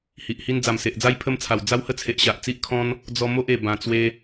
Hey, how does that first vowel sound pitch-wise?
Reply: low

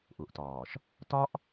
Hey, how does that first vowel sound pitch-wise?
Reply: low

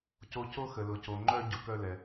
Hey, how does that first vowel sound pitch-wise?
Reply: high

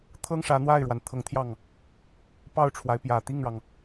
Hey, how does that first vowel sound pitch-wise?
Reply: high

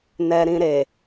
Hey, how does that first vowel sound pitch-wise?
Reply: low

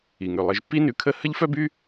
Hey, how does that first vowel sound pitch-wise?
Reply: low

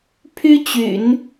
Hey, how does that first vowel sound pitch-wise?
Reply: high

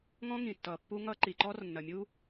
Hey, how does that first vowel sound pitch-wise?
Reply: high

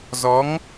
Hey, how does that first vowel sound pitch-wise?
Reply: rising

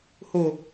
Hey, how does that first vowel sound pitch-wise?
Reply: high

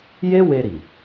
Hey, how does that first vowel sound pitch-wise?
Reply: high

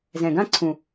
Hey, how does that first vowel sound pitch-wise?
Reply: low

